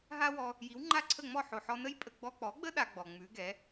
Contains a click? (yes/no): yes